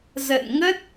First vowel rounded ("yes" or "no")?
no